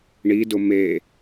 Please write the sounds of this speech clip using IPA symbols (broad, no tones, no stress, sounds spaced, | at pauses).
ɳ i d ʊ m e